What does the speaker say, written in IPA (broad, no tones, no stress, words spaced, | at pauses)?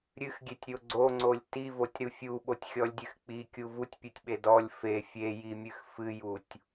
ɾʲɨxɡʲetʲɾʲo ɡ͡ǀoŋ͡ǀolʲ tivotʲɾu fʲuɓotʲxʲɔlʲdʲɨx k͡pikʲu vutʲpʲutʲɓe dɔlʲ fe fʲejimʲɨx fɨjutʲ